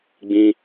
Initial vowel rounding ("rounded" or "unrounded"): unrounded